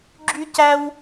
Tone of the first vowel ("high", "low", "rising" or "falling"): high